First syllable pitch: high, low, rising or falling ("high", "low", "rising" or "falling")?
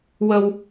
high